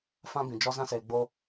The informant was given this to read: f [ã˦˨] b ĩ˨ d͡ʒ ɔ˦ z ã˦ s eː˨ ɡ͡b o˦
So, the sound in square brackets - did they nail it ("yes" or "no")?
no